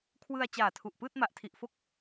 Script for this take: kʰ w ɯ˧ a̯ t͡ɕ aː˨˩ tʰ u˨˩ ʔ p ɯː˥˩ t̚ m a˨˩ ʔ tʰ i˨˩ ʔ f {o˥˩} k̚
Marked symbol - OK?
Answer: yes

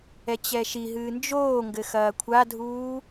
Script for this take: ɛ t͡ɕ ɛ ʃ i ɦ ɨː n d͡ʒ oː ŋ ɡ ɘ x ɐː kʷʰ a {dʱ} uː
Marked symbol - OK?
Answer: yes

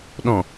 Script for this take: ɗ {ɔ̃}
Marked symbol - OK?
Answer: yes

